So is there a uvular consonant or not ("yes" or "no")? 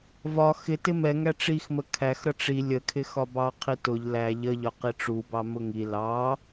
yes